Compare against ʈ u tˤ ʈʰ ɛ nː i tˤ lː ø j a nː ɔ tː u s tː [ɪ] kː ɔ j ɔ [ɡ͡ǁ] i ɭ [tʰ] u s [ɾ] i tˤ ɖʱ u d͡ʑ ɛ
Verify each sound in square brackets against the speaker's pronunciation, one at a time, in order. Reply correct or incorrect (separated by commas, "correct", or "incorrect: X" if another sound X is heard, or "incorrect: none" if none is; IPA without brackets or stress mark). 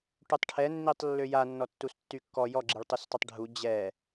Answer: incorrect: y, correct, incorrect: tˤ, incorrect: tˤ